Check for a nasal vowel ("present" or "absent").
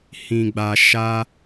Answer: present